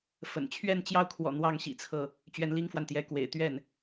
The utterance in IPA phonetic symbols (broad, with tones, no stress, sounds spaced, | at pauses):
f ə̰˨˩ n t͡ɕʰ ɥ ɛ˥˧ n t͡ɕ j ɑ˥˩ ʊ̯ kʰ w ɔ̰˨˩ n̪ w ɑ˥ ŋ ɕ ḭ˨˩ t͡sʰ ɤ˥˩ | t͡ɕ ɥ ɛ˧˥ n l i˥ ŋ f w a˨ n t̪ j ɛ˧˥ k w ḛ˨˩ ɪ̯ t̪ ɥ ɛ˥˩ n